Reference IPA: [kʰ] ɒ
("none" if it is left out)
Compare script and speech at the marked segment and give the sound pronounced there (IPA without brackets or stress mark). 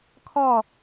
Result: kʰ